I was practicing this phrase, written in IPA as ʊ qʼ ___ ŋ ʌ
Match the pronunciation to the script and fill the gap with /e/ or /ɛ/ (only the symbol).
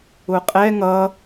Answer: ɛ